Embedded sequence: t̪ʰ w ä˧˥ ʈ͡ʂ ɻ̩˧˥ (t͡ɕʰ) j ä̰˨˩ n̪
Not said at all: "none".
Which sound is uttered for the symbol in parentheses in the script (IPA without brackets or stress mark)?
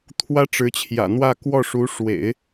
t͡ɕʰ